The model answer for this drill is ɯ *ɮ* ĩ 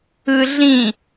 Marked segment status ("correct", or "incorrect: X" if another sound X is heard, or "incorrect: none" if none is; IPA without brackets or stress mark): correct